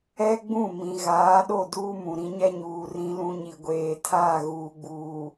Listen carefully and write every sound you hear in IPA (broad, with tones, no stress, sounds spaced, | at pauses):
ɛ˦ ɡ͡b ũ˦˨ m ĩ˨ ɣ aː˨˦ ɗ o˦˨ d uː˦ m ũ˨ ɾ ĩ˦ ɲ ɛ˦ ɲ uː˨ r ĩ˦ l ũ˦ ɲ i˨ ɡʷ eː˨ tʰ aː˦˨ ɣ uː˨ ɡ͡b uː˨